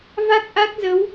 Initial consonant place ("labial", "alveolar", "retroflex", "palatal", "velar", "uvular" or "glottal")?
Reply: labial